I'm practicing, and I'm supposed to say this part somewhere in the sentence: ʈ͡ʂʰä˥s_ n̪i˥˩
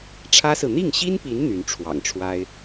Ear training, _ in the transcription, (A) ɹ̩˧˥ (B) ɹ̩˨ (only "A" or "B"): B